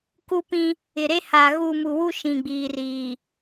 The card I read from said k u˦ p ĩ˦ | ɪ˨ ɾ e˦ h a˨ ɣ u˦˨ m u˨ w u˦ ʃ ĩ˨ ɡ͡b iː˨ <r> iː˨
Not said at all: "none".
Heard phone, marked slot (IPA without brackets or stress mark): r